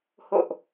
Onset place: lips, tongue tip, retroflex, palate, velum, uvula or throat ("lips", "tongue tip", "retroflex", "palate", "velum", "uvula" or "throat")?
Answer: throat